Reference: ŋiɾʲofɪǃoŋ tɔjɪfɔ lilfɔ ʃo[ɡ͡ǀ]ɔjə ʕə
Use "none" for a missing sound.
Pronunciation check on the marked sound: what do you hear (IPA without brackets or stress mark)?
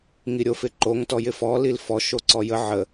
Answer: ǀ